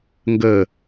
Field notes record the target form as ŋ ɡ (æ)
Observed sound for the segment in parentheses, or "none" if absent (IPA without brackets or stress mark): ə